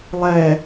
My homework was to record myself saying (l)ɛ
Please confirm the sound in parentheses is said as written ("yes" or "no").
no